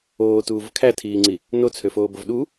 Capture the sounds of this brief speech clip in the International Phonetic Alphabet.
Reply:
oː t uː v kʰ æ tʰ iː ŋ͡ǀ i | n o t͡sʰ ø f oː b o v ɗ u

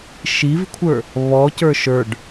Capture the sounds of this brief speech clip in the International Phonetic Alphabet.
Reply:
ʃ i v kʷʰ ə˞ | β ɔ c ə˞ ʃ ə˞ ɖ

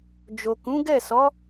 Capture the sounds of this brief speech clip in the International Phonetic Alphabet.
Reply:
d͡ʒ o˨ k ũ˨˦ ɡ ɛ˦˨ s ɔ˨˦

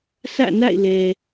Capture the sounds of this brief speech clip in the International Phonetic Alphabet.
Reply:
sʰ ä̰˦˨ n a̰˦˨ ɪ̯ l ɛ˨

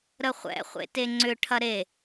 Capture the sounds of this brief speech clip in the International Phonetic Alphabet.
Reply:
ɾ ə χʷ ɛ̰ χʷ ḛ t e ŋ͡ǀ ʏ ʈʰ ɐ ɾ e

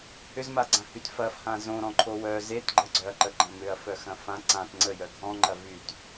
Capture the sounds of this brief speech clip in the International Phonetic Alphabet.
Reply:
h ʏ z m a ɡ͡ǀ ã h y t f ɐ f h ã z õ ɾ ɔ̃ ǃʰ o w œ z e t ɡ͡ǃ ə ɡ͡ǀ œ ɐ̯ ǃ ə ɡ͡ǃ ɐ̃ m ʏ ɐ̯ f œ x ɐ̃ f ã ǀ ã t ŋ͡ǀ ə j œ ɡʱ ɔ̃ ŋ͡ǃ ɐ v y t

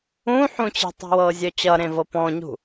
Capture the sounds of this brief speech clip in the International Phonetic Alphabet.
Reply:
ũ ħ ũ t͡ɕ i̤ tˤ i̤ w ɤː zʲ œ t͡ɕ ʌ ɾ ẽ v ɤ p ɔ̃ ɲ ṳ

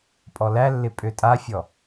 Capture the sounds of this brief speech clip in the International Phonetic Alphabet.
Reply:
pʼ ɔ l æ lː ɪ pʼ ø tʼ a fʲ ɔ

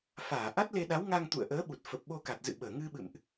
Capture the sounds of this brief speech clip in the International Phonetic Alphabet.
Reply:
f aː˧˩ ʔ a˦˥ t̚ l e˧ ɗ a˨˦ w ŋ a˧ ŋ t̪ ṵ˧˨ ə̯ ʔ əː˨˦ ɓ u˨˩ t̚ f ə˨˩ p̚ ɓ o˧ k a˨˩ t̚ z ɨ̰˧˨ ɓ əː˧˩ ŋ ɨ˧ ɓ ɨ̰˧˨ m ʔ

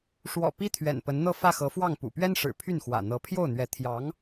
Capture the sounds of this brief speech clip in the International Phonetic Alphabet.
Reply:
ʂ w ɔ̰˨˩ p i˥ t̪ʰ ɥ ɛ̰˨˩ n p ə˧˥ n n̪ ɤ˥˧ f ä˥˩ x ɤ˧˥ f w ɑ˥˩ ŋ p ṵ˨˩ p ɥ ɛ˥ n ʂ ɻ̩˨˩ pʰ y˥˩ n x w ä̰˨˩ n̪ ɤ˧˥ pʰ j o˥˩ ʊ̯ n̪ ɥ ɛ˧˥ t̪ʰ j ɑ˧˥ ŋ

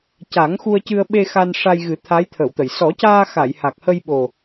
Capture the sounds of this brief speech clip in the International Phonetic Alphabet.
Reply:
c a˨˩˦ ŋ x u˧ ə̯ c ɨ˧ ə̯ ɓ e˧ x a˧ n ʂ a˧ j ɣ ɨ˨˩˦ t̪ʰ a˧˥ j t̪ʰ ə˨˩˨ w t̪ ə˨˩˨ j s ɔ˨˩˦ c aː˧ x a˨˩˨ j h a˨˩ k̚ h ə˧ j ɓ o˨˩

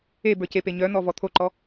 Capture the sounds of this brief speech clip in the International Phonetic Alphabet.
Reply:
e b ə˞ c e p e ɲ œ n̪ ɔ v ɔ t̪ʰ o ǃ ɔ

